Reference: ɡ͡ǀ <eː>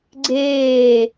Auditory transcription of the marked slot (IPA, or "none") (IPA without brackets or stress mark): eː